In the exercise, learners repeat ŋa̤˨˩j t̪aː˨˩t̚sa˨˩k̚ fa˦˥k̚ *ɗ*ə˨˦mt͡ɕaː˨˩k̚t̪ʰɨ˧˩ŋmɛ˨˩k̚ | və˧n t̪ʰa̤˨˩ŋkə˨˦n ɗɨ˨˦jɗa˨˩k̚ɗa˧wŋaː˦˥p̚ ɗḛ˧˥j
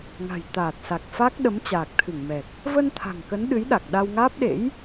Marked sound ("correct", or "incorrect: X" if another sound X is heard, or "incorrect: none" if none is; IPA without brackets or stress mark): correct